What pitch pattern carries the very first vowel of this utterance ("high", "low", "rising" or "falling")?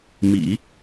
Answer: low